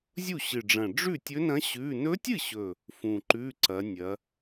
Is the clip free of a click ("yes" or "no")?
no